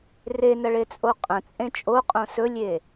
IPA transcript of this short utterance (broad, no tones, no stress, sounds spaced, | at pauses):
r e n ɐ ɭ e t͡sʼ o qʼ ɐ̃ t͡sʼ ẽ t͡ʃʼ o qʼ õ s ɵ lʲ e